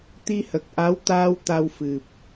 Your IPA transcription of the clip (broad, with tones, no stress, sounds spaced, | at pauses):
t̪ i˧ h ə˨˩ k̚ ʔ a˧˥ w t̪ aː˧ w t̪ a˧ w f ɨ˨˩ p̚